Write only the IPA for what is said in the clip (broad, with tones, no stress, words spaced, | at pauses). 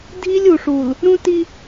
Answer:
dʱi˦lʲu˨ʂu˨l | ɾũ˦ti˦